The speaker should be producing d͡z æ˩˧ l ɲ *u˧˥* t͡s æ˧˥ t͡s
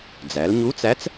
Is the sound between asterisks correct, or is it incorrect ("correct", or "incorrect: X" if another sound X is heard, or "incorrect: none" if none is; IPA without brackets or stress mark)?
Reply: correct